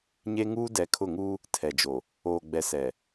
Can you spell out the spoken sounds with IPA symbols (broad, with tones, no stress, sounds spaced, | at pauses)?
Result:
ɲ e˦ ŋ uː˦ d ɛ˨ kʰ ʊ˦˨ ŋ uː˦ | tʰ ɛ˨ d͡ʒ o˨ | oː˨ ɡ͡b ɛ˨ s ɛ˨